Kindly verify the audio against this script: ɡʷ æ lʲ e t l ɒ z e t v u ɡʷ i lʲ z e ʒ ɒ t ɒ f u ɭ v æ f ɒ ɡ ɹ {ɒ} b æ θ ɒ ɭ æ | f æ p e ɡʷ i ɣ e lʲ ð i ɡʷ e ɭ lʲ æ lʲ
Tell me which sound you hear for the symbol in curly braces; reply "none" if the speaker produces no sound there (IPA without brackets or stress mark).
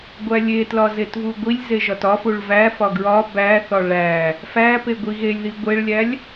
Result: ɒ